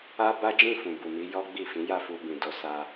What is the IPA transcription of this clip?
a˦ b a˦ d͡ʒ ĩ˦˨ f ũ˨ b u˨ m i˨˦ j ɔ˦ ɡ͡b i˦˨ f ĩ˨˦ j a˦˨ f u˧ b ĩ˨ d o˨˦ s a˧

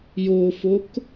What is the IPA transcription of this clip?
j o f o k

